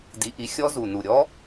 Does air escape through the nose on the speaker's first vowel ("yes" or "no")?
no